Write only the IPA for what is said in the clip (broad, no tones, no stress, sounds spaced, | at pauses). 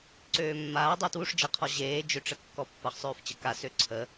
ǀ øː mː aː dˤ u t w u ʂ d͡ʒ ʌ qʰ ɔ ʑ eː d͡ʒ ø ʈ͡ʂ ə kː ɔ pː ʌ χ sˤ øː f t͡ɕ ə k a s ø ǀʰ ə